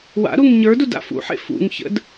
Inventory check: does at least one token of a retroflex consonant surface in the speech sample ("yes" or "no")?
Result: no